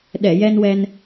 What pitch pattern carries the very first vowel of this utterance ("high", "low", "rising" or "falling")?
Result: low